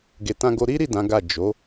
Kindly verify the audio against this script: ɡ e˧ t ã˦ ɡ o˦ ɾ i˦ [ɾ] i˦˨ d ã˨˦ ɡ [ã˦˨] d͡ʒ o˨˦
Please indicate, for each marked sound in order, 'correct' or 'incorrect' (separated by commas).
correct, incorrect